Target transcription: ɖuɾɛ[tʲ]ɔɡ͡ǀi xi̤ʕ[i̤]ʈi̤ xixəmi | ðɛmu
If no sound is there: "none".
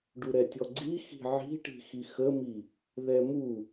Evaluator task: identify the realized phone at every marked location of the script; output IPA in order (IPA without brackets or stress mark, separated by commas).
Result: tʲ, i̤